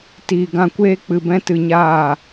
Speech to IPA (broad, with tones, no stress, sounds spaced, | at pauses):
t iː˨ ɡ ã˧ kʷ eː˦ k͡p ɨ˧ b ɛ̃˦ t ɨ˧ ɲ aː˦˨